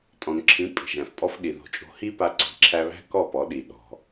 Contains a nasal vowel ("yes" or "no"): yes